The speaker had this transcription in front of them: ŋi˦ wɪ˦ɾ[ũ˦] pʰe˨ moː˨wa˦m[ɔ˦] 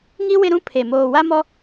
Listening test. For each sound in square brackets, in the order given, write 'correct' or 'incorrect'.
correct, correct

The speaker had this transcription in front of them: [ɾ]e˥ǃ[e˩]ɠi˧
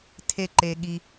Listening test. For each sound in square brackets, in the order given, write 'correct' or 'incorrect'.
incorrect: tʰ, incorrect: e˧

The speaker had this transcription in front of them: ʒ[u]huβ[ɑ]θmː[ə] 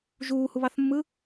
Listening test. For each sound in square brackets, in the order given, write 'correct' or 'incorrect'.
incorrect: uː, correct, incorrect: ɯ

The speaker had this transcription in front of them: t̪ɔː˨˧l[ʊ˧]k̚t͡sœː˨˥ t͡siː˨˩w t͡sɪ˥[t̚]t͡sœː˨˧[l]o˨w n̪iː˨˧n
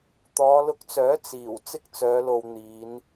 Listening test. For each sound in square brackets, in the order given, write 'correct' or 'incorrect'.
correct, incorrect: k̚, correct

